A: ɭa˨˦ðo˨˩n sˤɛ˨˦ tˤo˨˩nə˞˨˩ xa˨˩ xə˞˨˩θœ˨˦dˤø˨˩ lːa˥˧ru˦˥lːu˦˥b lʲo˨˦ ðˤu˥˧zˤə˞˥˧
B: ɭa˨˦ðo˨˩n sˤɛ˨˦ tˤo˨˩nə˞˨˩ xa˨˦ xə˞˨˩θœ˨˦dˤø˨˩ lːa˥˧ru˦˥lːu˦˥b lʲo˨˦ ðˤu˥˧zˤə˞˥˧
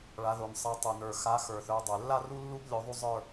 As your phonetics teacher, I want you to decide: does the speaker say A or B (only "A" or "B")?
B